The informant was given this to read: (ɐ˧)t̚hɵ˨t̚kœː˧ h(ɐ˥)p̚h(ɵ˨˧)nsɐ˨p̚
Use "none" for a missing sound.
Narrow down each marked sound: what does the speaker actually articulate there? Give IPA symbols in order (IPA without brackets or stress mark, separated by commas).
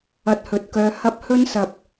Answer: ɐ˧, ɐ˥, ɵ˥